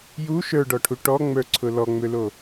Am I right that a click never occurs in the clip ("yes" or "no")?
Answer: no